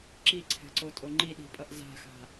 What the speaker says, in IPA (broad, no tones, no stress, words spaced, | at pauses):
ǁiǀʰɛ̤ǀotʼo ŋ͡ǃiɗi̤pʼʌʔ za̤xa̤